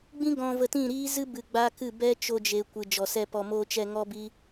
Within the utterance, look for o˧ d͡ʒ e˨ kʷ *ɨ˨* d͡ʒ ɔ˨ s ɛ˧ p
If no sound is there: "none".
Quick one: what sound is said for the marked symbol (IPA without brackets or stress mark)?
ɨ˨